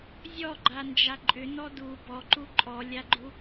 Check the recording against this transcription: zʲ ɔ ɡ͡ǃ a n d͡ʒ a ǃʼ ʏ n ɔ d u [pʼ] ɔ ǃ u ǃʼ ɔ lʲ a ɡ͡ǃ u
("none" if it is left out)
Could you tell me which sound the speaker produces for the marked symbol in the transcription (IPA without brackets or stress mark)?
b